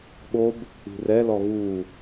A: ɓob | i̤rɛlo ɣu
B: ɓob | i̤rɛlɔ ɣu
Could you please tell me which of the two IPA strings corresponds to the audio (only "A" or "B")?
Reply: B